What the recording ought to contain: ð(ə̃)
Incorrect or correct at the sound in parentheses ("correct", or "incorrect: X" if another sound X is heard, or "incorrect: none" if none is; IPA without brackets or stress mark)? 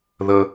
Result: incorrect: ə